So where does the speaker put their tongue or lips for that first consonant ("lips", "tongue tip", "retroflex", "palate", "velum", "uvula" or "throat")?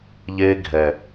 palate